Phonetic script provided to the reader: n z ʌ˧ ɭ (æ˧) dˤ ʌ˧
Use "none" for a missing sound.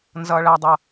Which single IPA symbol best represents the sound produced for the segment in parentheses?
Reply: æ˧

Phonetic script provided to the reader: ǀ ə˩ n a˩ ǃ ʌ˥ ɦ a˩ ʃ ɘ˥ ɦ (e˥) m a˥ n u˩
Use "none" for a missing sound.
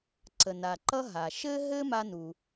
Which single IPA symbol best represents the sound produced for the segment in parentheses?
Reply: ɘ˥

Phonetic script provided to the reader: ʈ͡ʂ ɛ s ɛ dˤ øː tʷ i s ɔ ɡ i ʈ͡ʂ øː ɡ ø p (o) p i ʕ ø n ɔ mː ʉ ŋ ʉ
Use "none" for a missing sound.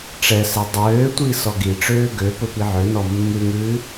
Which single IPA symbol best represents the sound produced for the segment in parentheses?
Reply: ɵ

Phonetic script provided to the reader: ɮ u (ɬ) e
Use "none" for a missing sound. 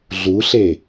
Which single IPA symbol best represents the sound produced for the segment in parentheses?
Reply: ɬ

